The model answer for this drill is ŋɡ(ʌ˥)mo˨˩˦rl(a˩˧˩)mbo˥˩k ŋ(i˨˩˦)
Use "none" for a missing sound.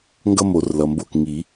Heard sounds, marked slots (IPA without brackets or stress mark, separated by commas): ʌ˥, ʌ˩˧˩, i˨˩˦